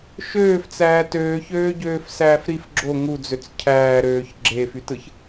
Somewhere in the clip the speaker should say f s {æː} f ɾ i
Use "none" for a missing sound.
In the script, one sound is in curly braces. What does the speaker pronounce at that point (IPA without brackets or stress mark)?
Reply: æː